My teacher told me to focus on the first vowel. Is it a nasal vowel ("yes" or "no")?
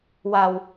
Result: no